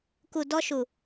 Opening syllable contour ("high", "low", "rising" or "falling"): low